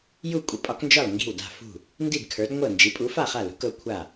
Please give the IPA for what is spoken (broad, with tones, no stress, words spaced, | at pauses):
ju˥˩ kʷʼə˩˥pʼɒ˩˥knd͡ʒɒ˥˩l ŋɡi̤˥˩wda̤˥˩ fṳ˥˩ | ndi˥˩dkʰə˞˩˥dŋʷɤ˥˩ nd͡ʒi˩˥pʼu˩˥fa˥˩χa˥˩ lṳ˩˥kɤ˩˥ kʷʰa˥˩